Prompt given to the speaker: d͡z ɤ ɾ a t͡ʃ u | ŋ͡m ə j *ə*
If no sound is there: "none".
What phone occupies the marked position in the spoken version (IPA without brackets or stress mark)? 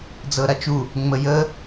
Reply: ə